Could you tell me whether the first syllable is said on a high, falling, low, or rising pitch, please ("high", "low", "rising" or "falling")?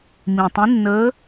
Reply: low